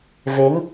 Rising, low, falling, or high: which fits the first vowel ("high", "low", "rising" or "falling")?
rising